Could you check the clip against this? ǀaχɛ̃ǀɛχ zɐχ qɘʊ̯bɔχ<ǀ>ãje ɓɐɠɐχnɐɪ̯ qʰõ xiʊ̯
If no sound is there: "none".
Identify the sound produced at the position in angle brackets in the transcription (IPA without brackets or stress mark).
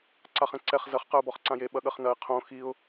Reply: ǀ